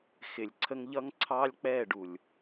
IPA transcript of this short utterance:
xɪ˨lʲǀʰə˦ŋ ʎʌ˦ŋǀʰɑ˦lʲk͡pɛː˦˨ ɖu˨lʲ

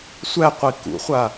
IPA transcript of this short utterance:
sʷæqʷi kṵχʷa

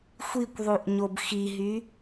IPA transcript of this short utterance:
xʷikʷðˤuʔɲob xiɦy

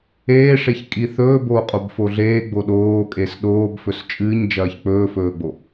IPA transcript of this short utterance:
eːʂeç kʼiθɵː boːqʼobfoɮeː ɡ͡boɗoːkʼes ɗoːbfɵs t͡ʃʼɨːɲd͡ʒɐːç k͡pɵːfɵːɡ͡bo

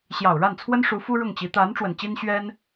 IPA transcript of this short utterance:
ɕjɑ˨˩ʊ̯ɻa˥˩nt͡sʰwə˥nʂu˧˥ fu˥ɻʊ˥˩ŋt͡ɕi˧˥ t̪a˧˥n ʈ͡ʂwə˨˩nt͡ɕi˥n ɕɥɛ˥n

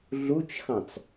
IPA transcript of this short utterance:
ɮut͡ʃxɑ̃t͡s

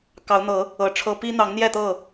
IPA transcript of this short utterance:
kɑ˨˦ʊ̯n̪ɤ˨˦ | ɤ˨˦ʈ͡ʂʰɤ˦ pi˦n̪ɑ˨˦ŋn̪jɛ˥˨ t̪ɤ˥˨

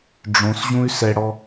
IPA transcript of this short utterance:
ɖ͡ʐõsʑũy̯ sɛɽɔ

